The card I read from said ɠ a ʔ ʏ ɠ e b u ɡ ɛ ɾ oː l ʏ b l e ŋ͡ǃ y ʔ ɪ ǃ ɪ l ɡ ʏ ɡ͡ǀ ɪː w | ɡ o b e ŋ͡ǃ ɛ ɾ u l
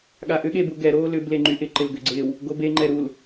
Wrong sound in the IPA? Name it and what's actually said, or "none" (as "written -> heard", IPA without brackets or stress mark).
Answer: none